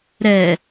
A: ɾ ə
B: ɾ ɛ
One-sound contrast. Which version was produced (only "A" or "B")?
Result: B